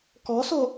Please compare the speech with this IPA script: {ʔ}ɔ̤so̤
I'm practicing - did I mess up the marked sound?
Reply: yes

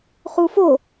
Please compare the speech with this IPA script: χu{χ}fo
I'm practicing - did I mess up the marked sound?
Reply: yes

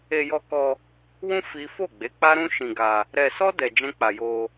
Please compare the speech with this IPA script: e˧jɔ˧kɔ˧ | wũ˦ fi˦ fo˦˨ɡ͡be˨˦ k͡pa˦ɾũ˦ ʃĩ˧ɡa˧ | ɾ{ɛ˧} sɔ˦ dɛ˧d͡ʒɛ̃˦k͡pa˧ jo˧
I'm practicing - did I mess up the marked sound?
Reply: no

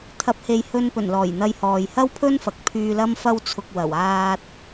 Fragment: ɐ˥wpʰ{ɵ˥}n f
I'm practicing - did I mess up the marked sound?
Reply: no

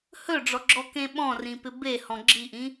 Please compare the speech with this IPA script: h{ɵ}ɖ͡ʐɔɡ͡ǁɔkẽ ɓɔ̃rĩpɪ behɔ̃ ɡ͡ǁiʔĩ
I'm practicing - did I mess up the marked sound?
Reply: no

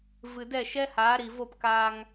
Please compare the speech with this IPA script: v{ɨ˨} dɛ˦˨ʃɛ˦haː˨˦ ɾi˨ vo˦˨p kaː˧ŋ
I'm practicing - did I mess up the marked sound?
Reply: no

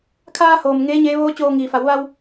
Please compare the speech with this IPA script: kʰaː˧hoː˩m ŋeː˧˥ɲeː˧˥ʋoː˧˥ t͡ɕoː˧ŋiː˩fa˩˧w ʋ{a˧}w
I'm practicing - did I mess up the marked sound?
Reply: no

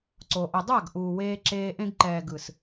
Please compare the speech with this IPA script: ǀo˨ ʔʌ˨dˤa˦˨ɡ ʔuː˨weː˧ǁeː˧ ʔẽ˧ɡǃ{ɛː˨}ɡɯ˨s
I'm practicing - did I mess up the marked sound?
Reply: no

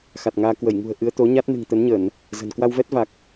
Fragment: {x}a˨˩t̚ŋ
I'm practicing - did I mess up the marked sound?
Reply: no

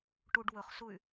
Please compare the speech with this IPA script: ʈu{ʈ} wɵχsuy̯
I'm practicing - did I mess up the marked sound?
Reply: yes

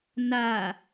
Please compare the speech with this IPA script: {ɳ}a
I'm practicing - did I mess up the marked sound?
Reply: yes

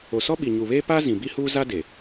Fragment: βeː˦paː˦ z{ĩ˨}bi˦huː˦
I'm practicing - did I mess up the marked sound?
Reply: no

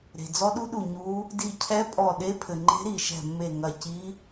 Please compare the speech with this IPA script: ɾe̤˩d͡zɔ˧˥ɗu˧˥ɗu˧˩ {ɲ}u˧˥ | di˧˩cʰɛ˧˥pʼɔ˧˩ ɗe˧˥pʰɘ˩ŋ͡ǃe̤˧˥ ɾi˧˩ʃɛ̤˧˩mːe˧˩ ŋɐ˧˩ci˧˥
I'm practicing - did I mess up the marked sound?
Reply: no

